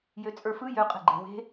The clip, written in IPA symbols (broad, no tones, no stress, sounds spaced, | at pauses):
j ø t͡sʼ ə˞ f ɯ j ø qʼ e̤ ɡ͡ǃ e̤ w e̤